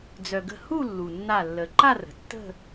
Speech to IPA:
d͡z œ˩ ɡ ə̤˧˩ h u˥˧ lː u˩ nː a˧˩ lː ə˩ ǃ a˥˧ r ə̤˩ tː ə̤˥˧

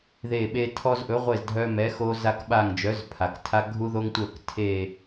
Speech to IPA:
ð e˦˨ ɓ e˦ tʰ ɔ˦ z ʔ ɵ˨˥ ʁʷ e˦˨ z dʱ œ˦ m ɛ˨˥ x o˦ z a˦ k ɓ a˦˨ ŋ d͡ʒ œ˨˥ z pʰ a˩ k tʰ a˦ ɡʱ u˦ ð o˦ ŋ tʷ œ˦˨ k tʰ e˦˨

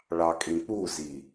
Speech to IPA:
ɭ ɑ kʼ ĩ k͡p u z i

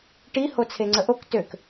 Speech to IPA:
ʈ i h o t͡sʰ e ŋ͡ǀ ə ʔ o k t ø k

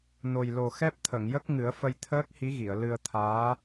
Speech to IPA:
n o˨˩ j l o˨˩ x ɛ˦˥ p̚ t̪ʰ ə˨˩˨ ŋ j ə˦˥ k̚ ŋ ɨ˨˩˦ ə̯ f ə˧ j t̪ʰ əː˦˥ k̚ h i˧˥ ɣ i˨˩˨ ə̯ l ɨ˧ ə̯ t̪ʰ aː˧˥

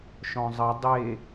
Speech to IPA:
ʃ ɔ̃ zˤ ə dˤ e

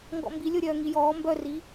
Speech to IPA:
ŋ ɡ ɔ̰ m b i lʲ o ɾʲ œː ŋ i j ɔː m b œ r i

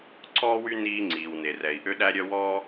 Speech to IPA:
ǀ ɔː˥ w y˥ n iː˥ ŋ͡ǀ iː˩ w n e˩ r ɛ˩ i̯ ʔ ø˥ ɗ æ˥ ɾʲ œ˥ w ɔ˥

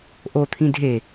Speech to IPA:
ʔ o t̪ʰ ĩ dʱ e

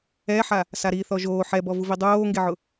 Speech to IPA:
ɛ ħ a | s a ɾ i θ ɔ ʒ oː ħ ɛ b ɔ v u v i dˤ oː ŋ ɡ e ʕ ʊ

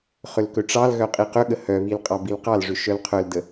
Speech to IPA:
χ ʏ l k ɵ ʈ͡ʂ ɑ l ɣ œ qʼ i q ɵ ɠ ə h œ β i l qʼ ɑ b i l q ɑ l ʐ ʏ ʃ œ l qʰ œ l d ə

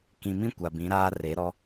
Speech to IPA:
k ĩ˨ m ĩ˦ kʷ a˨ b ĩ˨˦ ɾ aː˦ r e˨˦ ɾ ɔ˦

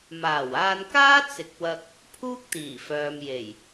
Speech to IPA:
m aː˨˩ w aː˧ n k aː˥ t͡s ɪ˨˥ k̚ w ɐ˧ k̚ | pʰ uː˥ k̚ t̪ iː˨˩ f œː˨ m j e˨˩ j

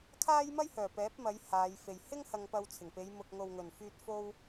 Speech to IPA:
kʰ aː˥ j m ɐ˥ j h œː˨˩ p ɛː˨˥ p̚ m ɐ˨˧ j h aː˨˧ j f e˨ j h ɪ˥ ŋ h ɐ˧ ŋ p ɐ˧ w t͡sʰ ɪ˨˩ ŋ p e˨˧ j m ʊ˨ k̚ ŋ o˨ w ŋ ɵ˨˩ n f yː˧ t̚ f o˥ w

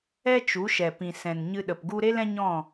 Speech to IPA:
ɛ˦ t͡ʃ u˨˦ ʃ ɛ˨ p ĩ˨ s ɛ̃˨ n ɲ ɨ˧ ɗ ə˨ p ɡ u˦ ɾ e˦ l ɛ̃˦ ɲ ɔ̃˦˨

